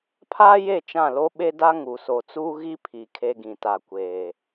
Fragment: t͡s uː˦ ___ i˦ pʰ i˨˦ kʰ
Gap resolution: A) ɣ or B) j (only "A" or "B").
A